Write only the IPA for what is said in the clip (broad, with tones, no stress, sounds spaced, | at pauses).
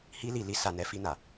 h i˦ l i˧ l i˦ s a˧ n ɛ˦ f i˧ n a˨